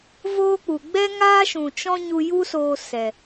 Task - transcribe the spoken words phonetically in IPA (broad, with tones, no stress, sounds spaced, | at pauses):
v oː˦ k͡p u˨ ɡ͡b ɛ˦ ŋ aː˦ ʃ ũ˨ t͡ʃ ɔ̃˦ ɲ u˧ j u˦ s oː˧ s ɛ˨